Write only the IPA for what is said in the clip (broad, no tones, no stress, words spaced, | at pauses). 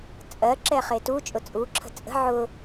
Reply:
t͡sʼɜ ǁɛχetu t͡ʃʼʊt͡sʼu ǁʰə̤t͡sʼə̤ ʕʊ